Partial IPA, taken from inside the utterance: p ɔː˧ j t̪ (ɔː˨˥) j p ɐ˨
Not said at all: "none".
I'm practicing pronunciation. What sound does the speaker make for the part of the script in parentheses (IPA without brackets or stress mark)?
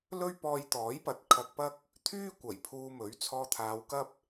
ɔː˨˥